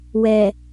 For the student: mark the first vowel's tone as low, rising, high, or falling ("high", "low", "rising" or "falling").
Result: low